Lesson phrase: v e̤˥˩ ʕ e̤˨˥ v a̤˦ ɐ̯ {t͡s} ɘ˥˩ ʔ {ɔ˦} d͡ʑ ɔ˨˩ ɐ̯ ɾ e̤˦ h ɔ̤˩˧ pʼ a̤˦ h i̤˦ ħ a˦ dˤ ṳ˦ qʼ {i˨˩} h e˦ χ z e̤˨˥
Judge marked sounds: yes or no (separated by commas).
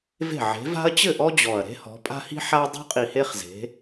no, yes, yes